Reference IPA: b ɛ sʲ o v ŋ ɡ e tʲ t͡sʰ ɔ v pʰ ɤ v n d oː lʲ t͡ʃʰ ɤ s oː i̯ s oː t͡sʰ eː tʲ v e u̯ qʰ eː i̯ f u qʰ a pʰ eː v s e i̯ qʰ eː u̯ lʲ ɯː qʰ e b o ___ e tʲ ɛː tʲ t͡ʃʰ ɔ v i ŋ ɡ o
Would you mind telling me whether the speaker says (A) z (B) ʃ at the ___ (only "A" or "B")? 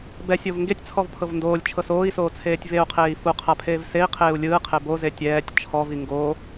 A